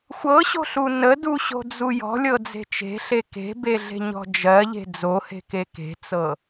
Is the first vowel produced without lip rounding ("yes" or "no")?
yes